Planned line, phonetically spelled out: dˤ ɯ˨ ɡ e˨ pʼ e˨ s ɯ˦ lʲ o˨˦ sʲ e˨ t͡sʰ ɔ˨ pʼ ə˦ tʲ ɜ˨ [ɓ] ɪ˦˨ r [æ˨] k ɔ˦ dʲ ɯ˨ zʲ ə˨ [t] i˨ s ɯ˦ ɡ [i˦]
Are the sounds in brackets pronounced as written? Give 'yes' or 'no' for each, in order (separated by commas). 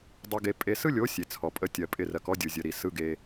no, no, no, no